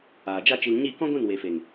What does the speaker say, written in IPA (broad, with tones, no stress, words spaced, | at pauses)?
aː˨d͡ʒa˦t͡ʃi˧l ɲi˦˨ kɔ̃˦ɡʷɛ̃˦˨n we˨fe˨ŋ